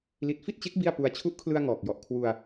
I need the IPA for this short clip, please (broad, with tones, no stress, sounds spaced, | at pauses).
l i˨˩ t̚ f i˥˩ t̚ t͡ɕ e˦˥ k̚ b i˥˩ a̯ p u˧ a̯ t͡ɕʰ u˦˥ ʔ kʰ l ɯ˧ a̯ ŋ ɔː˨˩ k̚ j ɔ˨˩ ʔ kʰ w u˧ a̯